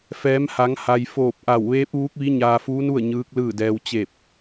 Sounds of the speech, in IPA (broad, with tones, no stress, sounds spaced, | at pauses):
f ɛː˩˧ m h a˩˧ ŋ h a˩ j f oː˧˩ p̚ ʔ a˧˩ w ʋ eː˧˥ p̚ ʋ uː˧˥ k̚ ʋ i˧˥ ɲ aː˧ f uː˧˥ n u˥˨ ə̯ ɲ ɯː˧˥ k̚ l ɯː˥˨ d ɛː˧ w t͡ɕ e˧˩ p̚